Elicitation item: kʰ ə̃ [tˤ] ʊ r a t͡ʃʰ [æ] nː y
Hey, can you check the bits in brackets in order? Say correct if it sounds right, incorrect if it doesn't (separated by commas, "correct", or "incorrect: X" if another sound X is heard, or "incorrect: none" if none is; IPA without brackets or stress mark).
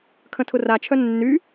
incorrect: tʰ, incorrect: œ